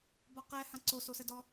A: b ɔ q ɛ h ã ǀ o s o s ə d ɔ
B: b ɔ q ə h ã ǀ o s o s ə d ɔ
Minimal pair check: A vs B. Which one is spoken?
A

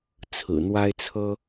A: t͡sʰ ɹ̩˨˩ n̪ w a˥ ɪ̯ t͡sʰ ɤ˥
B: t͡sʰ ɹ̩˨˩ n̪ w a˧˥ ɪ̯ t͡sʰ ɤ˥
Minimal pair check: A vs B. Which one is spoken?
A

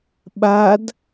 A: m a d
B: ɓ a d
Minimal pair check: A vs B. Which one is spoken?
B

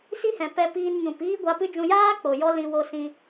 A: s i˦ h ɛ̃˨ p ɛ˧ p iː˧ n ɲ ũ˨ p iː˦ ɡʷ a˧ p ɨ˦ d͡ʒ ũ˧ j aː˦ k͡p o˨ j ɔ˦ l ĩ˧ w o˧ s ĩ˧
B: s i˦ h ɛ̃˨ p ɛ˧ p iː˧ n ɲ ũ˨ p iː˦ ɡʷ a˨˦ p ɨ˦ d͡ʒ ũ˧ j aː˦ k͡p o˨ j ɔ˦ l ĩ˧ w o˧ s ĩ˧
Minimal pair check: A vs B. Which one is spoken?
A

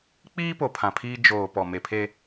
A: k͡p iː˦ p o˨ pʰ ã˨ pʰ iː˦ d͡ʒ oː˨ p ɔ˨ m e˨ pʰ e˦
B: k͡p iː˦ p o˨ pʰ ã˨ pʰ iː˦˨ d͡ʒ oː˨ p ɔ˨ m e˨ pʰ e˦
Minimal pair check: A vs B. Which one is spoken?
A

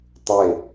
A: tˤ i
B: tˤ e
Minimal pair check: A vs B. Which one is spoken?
B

